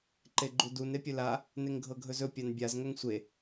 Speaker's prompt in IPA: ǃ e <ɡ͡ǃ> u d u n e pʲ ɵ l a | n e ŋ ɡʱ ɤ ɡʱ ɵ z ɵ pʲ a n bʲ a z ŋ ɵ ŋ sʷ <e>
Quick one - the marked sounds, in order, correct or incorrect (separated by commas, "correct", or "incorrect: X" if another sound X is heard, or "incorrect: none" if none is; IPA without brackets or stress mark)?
correct, correct